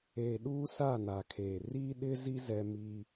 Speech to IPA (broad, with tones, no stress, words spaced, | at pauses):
eː˨ɗuː˦ sa˦˨ na˨kʰeː˨ riː˦ɗɪ˦zi˦ zɛ˦miː˦